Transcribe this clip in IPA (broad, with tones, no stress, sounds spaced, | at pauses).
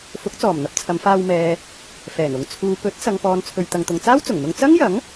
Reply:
f ʊ˨˥ k̚ t͡s ɔː˨˩ m n̪ ɐ˨ p̚ t͡sʰ ɐ˨˧ m f aː˧ w m ɛː˨ | f ɛː˨˩ n ʊ˨ ŋ t͡sʰ uː˨ p ɵ˨˥ t̚ s ɐ˨ ŋ p ɔː˨ n t͡sʰ ɵ˨ ɥ t̪ ɐ˨ ŋ t̪ ʊ˨ ŋ t͡s aː˥ w t͡s ʊ˨˩ ŋ n̪ ʊ˧ ŋ t͡s ɐ˥ ŋ j ɐ˨˥ ŋ